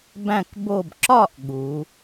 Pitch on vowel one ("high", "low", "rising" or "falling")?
falling